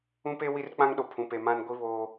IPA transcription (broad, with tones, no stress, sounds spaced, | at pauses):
ũ˦ p e˦ w i˦ r k͡p ã˦ ŋ ɗ o˨ pʰ ũ˨ p e˨ m ã˦ n ɡʷ i˦ β oː˦